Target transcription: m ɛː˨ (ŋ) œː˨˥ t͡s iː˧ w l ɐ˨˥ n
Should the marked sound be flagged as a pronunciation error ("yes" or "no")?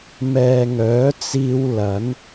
no